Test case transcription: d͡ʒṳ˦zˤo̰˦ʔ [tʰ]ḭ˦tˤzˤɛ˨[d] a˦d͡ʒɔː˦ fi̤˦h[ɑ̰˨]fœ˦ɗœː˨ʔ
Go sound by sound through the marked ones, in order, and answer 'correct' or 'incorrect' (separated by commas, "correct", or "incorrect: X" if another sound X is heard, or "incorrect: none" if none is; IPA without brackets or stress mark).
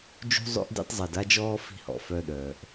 incorrect: d, correct, incorrect: ɔ̰˨